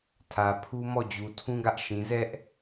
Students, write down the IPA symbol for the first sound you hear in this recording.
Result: tʰ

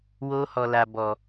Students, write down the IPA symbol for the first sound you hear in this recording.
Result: w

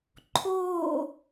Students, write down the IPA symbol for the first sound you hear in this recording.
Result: ǃʰ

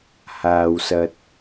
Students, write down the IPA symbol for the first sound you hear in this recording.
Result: h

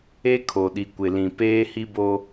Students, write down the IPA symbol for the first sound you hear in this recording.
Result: e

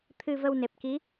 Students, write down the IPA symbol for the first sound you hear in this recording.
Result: t̪ʰ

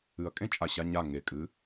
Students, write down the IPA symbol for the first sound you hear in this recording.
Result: ɨ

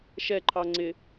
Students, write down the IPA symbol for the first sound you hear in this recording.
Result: ʃ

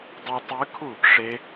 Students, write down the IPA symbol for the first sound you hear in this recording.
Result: dˤ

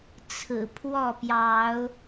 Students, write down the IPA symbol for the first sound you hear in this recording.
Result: t͡sʰ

